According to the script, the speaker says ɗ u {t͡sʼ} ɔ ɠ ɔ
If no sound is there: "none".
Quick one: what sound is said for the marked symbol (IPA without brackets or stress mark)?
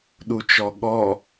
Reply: t͡ʃ